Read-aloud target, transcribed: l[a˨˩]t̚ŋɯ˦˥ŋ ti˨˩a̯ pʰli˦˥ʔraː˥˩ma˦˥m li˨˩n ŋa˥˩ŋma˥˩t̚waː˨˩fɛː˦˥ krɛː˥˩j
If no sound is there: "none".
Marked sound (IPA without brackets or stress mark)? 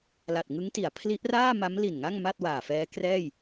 a˨˩